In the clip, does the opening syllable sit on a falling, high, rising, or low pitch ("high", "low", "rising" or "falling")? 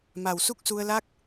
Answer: low